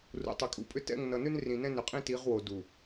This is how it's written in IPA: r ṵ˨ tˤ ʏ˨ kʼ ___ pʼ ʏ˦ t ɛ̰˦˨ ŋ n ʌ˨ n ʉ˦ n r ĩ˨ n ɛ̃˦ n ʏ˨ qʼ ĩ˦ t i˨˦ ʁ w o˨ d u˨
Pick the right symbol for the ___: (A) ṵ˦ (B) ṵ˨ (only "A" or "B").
B